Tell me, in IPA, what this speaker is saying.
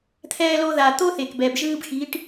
t̪ʰ ɛː˧ l o˧ ð a˨ t̪ o˦ θ e˨ k b ɛː˨ b ʒ ɯː˧ b x i˨˦ ʈ

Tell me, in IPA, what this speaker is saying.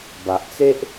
b a˨ ʔ t͡s e˦ ʔ

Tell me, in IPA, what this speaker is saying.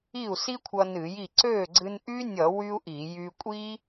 i˥˩ u̯ s i˥ kʷʰ ʌ˧ n ɨ˧˩˧ j i˥˩ ǀ ø˥˩ ɡ͡ǀ ɨ˧ n ʔ y˥ nʲ ʌ˧˩˧ w y˥ u̯ ʔ i˧˩˧ j y˧ kʷʼ i˥

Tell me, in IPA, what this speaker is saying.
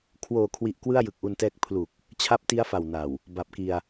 kʰ w oː˨˩ kʰ w i˨˩ ʔ k w ɯ˥˩ a̯ j ɯ˨˩ k̚ ʔ u˧ n t ɛː˦˥ k̚ pʰ l u˨˩ k̚ | t͡ɕʰ a˦˥ p̚ t i˦˥ a̯ f a˨˩ w n a˨˩ w | b a˨˩ p̚ k i˧ a̯

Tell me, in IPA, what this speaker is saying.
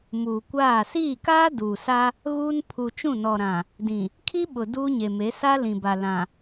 m uː˨ kʷ aː˦˨ s iː˦˨ k aː˦ d uː˨ s a˦ | ɣ uː˦ n pʰ u˨ t͡ʃ ũ˦˨ n ɔ˨ ɾ ã˨ | d ĩ˨ | kʰ i˦ ɓ ʊ˨ d uː˦ ɲ e˨ m e˨˦ s a˦ l ĩ˨ b a˨ l ã˨

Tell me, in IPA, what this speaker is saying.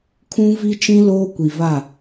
kʰ ũ˦ v i˦ t͡ʃ ĩ˦ l oː˦ kʷ i˨ v a˦˨

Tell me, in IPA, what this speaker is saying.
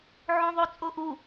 ʕ õ ðˤ o t͡sʼ o ʔ u

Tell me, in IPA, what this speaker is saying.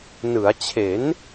n ɯ˩˦ a̯ t͡ɕʰ e˩˦ n

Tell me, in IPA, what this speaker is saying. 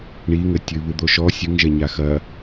ɳ i ŋ ɘ tʲ ɨ β ɨ d̪ o ʃ ɔ sʲ ɨ ŋ ʒ ɛ ɲ a x ɐ

